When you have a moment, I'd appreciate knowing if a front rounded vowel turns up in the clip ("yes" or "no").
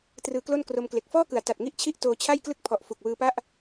no